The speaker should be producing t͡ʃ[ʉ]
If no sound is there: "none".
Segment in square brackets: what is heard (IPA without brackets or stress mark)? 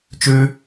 ʉ